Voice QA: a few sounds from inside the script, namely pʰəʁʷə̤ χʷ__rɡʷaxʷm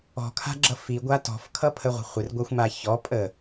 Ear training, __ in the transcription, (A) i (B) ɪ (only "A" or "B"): B